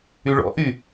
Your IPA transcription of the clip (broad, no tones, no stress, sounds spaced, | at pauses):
y ɭ ɔ̰ ʔ y